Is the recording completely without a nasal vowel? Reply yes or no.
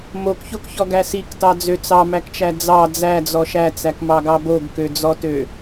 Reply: yes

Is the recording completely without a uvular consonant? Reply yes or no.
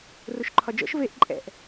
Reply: yes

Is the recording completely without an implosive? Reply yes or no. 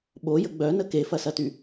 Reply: no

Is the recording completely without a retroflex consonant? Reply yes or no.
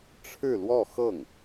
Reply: no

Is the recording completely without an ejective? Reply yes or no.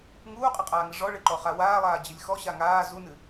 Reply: no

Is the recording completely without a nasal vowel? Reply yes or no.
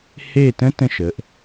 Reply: no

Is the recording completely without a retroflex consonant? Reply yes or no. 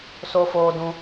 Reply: yes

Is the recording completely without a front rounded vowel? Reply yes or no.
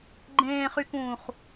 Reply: no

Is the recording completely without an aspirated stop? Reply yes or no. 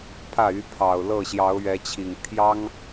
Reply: no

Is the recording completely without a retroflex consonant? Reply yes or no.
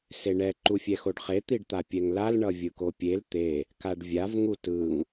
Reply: no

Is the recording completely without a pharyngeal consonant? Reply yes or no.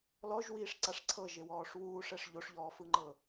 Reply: yes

